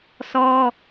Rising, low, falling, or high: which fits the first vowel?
high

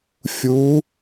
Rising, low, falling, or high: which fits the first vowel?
rising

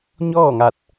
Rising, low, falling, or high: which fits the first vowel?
falling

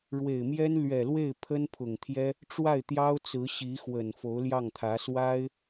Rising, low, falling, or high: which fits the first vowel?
low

